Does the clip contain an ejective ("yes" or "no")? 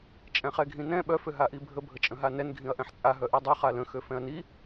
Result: yes